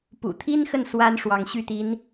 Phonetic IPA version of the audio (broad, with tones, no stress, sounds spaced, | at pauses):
p ṵ˨˩ t̪ʰ i˥ n x ə˥˩ n s w a˥ n ʂ w ɑ˧˥ ŋ ɕ y˥˩ t̪ i˧˥ n